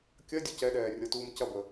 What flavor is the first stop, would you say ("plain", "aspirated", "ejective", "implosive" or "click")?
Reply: plain